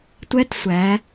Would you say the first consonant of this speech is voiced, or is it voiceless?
voiceless